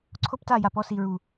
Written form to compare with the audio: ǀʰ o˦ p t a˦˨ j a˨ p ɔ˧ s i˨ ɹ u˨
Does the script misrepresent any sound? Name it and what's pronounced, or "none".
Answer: none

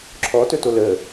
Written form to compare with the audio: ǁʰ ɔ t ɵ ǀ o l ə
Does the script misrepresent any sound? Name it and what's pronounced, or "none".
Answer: ǀ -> t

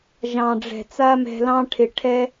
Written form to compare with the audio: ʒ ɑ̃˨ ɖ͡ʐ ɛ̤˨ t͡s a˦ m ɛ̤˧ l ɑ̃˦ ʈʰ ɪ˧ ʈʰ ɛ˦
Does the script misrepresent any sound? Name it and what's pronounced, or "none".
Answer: none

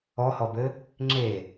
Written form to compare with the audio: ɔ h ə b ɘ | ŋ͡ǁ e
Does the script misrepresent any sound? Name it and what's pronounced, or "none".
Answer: ə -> ɔ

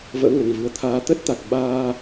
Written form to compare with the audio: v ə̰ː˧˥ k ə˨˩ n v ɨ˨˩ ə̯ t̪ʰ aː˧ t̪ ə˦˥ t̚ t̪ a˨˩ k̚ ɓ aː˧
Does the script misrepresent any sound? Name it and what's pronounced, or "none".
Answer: k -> ŋ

